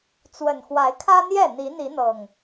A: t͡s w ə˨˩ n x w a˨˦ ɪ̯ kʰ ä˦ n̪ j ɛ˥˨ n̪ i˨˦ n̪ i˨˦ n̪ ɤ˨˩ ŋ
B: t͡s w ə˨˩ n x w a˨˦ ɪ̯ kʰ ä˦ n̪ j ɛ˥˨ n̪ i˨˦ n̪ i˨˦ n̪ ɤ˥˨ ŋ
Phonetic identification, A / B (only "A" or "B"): A